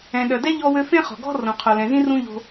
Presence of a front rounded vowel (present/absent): present